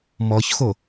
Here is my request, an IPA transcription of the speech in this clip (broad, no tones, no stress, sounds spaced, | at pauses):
m ɔ ç x o